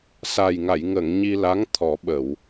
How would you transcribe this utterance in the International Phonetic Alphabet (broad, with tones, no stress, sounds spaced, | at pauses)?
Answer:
s a˨˩ j ŋ a˨˩˨ j ŋ ə˨˩˨ ŋ ɲ i˧ l a˧˥ ŋ t̪ʰ ɔ˨˩˦ ɓ ə˨˩˨ w